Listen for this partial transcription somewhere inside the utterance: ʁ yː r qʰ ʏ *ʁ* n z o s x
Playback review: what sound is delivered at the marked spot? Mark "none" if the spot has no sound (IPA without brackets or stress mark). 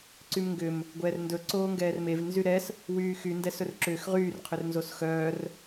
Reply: r